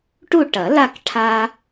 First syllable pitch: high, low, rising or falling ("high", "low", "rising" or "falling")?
falling